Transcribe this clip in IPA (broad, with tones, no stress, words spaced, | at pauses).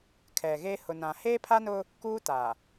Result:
kʰɛ˨ɣe˦ hʊ˨nã˨ heː˦pʰa˦nʊ˦ | kuː˦ta˨